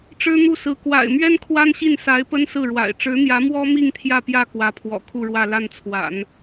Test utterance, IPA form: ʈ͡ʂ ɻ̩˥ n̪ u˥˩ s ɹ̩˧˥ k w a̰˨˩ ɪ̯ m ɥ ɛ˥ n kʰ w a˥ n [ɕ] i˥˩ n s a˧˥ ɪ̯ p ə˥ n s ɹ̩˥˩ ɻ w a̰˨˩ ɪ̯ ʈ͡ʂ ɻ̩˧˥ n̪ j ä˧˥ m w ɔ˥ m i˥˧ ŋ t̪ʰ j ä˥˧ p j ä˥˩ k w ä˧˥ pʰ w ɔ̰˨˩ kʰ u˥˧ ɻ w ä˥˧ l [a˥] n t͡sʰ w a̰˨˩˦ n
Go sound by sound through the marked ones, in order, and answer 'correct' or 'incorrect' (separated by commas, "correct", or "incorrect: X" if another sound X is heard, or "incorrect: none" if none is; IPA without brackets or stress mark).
correct, incorrect: a˥˩